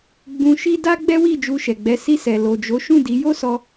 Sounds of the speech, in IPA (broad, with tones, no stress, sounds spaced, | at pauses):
ɡ͡b ũ˧ ʃ i˦ d a˦ ɡ͡b ɛ˦ w i˦˨ d͡ʒ u˧ ʃ ɛ˨ ɡ͡b ɛ˨˦ s i˧ s ɛ˨ l o˨ d͡ʒ o˨˦ ʃ ũ˦˨ d i˨˦ j o˦ s ɔ˧